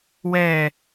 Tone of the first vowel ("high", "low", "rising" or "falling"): low